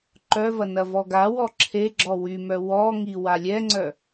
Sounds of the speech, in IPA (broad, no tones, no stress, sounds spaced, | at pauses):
ǃ œ v ɐ n ɐ v ɔ ɡ a w ɔ ǁʰ e ɡ͡ǁ ɔ w y m œ w ɔ ŋ i w a lʲ ɛ ŋ͡ǀ œ